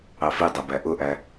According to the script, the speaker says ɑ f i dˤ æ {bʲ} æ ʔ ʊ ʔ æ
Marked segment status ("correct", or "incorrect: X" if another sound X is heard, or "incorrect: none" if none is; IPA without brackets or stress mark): incorrect: b